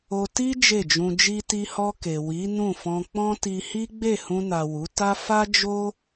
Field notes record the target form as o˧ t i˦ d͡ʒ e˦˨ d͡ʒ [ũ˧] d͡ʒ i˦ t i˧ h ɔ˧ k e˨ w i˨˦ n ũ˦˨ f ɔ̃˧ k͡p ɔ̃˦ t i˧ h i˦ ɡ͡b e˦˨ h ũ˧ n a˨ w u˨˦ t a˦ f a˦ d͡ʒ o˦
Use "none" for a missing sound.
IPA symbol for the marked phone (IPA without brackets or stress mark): ũ˧